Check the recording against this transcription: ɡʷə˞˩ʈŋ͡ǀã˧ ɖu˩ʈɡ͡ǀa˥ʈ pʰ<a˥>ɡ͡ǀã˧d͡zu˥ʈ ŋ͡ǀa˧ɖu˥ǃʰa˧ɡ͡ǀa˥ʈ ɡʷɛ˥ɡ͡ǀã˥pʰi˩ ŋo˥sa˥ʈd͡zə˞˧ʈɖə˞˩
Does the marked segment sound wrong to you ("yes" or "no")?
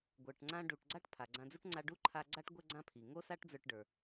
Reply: yes